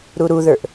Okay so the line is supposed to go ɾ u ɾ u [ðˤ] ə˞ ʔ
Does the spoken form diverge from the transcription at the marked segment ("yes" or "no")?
yes